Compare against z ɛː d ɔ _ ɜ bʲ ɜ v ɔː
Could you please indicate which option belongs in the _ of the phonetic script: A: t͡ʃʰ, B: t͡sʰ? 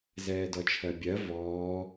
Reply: A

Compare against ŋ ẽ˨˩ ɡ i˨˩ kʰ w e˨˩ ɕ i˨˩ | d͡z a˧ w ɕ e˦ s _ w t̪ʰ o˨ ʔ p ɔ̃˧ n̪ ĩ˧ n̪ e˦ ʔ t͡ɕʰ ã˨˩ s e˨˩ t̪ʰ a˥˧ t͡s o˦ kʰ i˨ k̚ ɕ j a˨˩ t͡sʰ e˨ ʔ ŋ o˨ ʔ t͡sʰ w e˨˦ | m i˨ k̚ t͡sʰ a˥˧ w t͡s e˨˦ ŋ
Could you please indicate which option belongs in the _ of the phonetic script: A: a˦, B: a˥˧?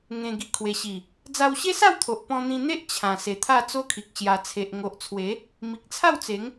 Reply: B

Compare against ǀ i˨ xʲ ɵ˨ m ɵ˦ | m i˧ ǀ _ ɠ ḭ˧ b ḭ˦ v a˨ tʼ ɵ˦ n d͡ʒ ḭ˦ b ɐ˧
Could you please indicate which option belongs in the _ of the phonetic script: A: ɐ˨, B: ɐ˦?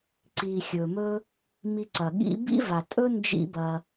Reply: A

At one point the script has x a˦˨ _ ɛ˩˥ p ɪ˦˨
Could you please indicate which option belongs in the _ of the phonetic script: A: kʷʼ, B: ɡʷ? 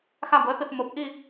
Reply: B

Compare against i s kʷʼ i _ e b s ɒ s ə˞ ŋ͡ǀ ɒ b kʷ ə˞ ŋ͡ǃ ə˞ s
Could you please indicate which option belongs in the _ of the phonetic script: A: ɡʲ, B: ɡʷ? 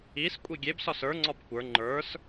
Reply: A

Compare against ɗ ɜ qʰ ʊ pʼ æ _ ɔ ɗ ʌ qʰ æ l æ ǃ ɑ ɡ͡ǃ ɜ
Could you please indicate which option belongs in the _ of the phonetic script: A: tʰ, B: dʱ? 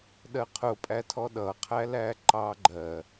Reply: A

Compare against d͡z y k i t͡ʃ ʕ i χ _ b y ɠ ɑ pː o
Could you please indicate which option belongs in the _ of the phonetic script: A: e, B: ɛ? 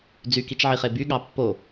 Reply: A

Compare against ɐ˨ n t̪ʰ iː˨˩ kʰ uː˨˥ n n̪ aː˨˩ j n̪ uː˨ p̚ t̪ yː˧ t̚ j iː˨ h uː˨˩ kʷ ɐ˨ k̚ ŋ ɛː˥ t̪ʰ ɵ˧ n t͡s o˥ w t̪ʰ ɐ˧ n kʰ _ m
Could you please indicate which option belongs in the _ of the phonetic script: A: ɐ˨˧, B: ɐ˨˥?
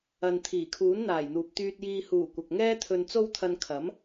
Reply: B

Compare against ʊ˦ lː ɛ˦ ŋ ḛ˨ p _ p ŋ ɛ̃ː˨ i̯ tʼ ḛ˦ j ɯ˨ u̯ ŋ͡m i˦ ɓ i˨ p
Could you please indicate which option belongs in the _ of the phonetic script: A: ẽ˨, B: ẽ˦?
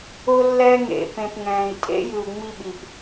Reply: A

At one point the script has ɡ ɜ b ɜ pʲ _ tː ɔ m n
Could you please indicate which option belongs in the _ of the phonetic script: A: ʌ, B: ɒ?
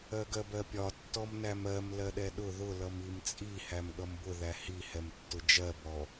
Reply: B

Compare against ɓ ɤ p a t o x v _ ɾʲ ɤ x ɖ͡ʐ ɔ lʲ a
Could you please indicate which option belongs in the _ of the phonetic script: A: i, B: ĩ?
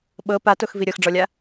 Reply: A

